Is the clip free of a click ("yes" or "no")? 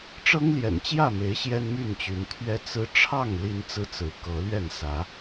yes